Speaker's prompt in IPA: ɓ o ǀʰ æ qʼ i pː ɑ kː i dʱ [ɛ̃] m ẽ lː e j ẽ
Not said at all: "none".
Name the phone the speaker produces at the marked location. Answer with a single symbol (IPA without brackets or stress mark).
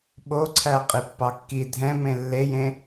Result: ɛ̃